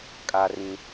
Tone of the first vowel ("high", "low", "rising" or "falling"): low